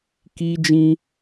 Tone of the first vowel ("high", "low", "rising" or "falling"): high